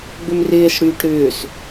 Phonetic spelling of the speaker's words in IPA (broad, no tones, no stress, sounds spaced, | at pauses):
ɡ͡b ʏ m r ɪː s ɽ yː ʈ ɾ ʏː s